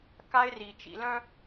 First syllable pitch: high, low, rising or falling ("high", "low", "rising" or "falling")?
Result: high